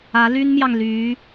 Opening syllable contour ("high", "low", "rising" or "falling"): rising